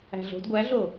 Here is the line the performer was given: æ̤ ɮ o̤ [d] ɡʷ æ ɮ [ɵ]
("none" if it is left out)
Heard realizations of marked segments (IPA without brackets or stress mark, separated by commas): d, o